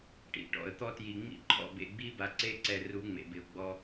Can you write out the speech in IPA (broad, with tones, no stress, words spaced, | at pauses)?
ʈḭ˨ʈɔ̰˨ə̯t̪ɔ˦ tji˨ŋ͡mḭ˦ ǃʰɔ̰˦˨bḛ˦˨ɡ͡bi˦ba˨ ǀe˦ǀɛ˨ ru˨˦ ŋ͡mḛ˨bɪ˨ʊ̯ɡ͡bɔ˦